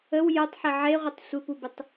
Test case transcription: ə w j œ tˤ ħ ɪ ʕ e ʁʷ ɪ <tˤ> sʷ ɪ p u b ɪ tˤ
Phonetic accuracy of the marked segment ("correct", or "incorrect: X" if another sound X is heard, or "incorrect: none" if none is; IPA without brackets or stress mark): correct